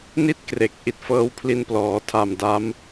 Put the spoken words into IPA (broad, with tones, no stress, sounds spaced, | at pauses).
n i˥˩ t̚ k r e˨˩ k̚ ʔ i˨˩ t̚ f ɤː˦˥ w pʰ l i˧ n p l ɔː˩˦ tʰ a˨˩ m d a˦˥ m